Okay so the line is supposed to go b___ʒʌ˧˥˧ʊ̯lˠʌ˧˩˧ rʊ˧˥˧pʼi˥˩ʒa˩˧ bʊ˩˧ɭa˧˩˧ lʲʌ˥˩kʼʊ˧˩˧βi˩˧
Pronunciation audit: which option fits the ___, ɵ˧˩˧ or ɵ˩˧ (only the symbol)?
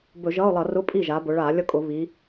ɵ˧˩˧